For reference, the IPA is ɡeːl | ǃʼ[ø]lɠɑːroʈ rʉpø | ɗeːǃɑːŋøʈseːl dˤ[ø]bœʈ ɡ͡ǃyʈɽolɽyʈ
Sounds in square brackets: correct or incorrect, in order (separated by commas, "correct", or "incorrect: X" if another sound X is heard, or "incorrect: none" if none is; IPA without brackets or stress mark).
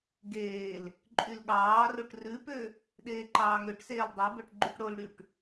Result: incorrect: y, incorrect: e